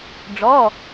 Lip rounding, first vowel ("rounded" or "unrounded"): rounded